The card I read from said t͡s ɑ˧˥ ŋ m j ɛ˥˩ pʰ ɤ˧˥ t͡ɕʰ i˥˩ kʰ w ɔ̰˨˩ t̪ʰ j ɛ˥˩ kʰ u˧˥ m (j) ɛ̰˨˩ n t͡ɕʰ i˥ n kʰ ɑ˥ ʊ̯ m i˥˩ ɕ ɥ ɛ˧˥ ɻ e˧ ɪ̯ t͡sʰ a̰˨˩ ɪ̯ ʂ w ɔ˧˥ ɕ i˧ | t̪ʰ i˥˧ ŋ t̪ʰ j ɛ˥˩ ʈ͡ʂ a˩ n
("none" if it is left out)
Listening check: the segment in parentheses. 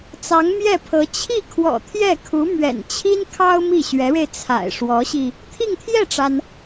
ɥ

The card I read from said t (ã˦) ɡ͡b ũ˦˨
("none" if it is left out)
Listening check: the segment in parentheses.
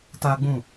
a˦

